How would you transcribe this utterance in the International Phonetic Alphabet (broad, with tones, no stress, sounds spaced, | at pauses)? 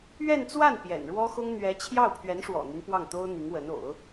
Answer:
ɥ ɛ˥˧ n t͡s w a˥˩ n p j ɛ̰˨˩ n ɻ w ɔ˥ x ʊ˥ ŋ n̪ ɥ ɛ˧˥ t͡ɕʰ j ɑ˥˩ ʊ̯ pʰ ɥ ɛ˧˥ n ʂ w ɔ̰˨˩ n̪ y˦ n p w ɑ˥˩ ŋ t̪ o˥ ʊ̯ n̪ i˧˥ ŋ w ə˧˥ n o̰˨˩˦ ʊ̯